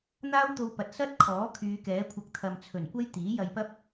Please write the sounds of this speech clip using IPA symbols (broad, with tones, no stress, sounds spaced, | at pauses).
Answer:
n̪ aː˥ w t̪ o˧ w p ɐ˨ t̚ s ɐ˥ t̚ kʰ ɔː˨˥ kʰ yː˨˧ k ɛː˨˥ kʷʰ ɐ˧ k̚ t̪ʰ ɐ˨ m t͡sʰ ɵ˨˩ n kʷ ɐ˥ j t̪ iː˨˥ j ɐ˧ j p ɐ˥ p̚